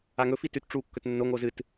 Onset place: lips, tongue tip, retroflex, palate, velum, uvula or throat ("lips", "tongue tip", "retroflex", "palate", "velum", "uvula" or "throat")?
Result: velum